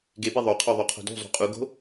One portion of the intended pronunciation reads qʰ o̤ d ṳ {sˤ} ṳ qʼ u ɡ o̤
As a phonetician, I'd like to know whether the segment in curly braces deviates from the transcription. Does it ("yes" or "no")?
yes